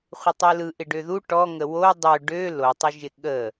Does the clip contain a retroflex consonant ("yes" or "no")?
yes